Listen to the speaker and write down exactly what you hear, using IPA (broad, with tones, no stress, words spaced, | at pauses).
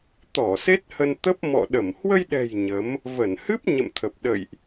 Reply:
t̪ɔ˧˩ se˦˥t̚hə˧nt̪ə˦˥p̚ mɔ̰˧˨ɗə˧˩m hwə˧jɗɛ̤˨˩j ɲə˨˦m | və˧˩nhɨ˦˥p̚ ɲə̰˧˨mt̪ʰə˨˩p̚ɗə̰˧˨jʔ